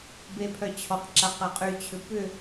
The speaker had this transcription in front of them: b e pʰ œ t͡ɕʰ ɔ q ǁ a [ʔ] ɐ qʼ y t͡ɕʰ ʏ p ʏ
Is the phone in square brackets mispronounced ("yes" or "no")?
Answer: yes